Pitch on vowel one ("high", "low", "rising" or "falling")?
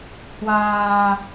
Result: low